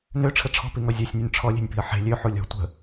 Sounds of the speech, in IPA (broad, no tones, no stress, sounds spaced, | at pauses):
n ø ʈ͡ʂʰ ə ʈ͡ʂʰ ɔ̤ p i ŋ ɔ zʲ ɔ sʲ nʲ u nʲ ʈ͡ʂʰ ɔ lʲ e̤ nʲ p i̤ ə̯ ħ e̤ lʲ ø ħ u lʲ ɔ̤ tʷ ə̤